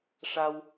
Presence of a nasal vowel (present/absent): absent